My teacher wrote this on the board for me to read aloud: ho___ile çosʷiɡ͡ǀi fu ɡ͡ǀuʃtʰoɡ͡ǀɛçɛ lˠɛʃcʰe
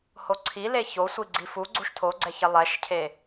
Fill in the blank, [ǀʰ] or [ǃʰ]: ǀʰ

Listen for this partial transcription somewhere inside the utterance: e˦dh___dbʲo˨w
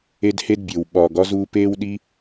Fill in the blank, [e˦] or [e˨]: e˦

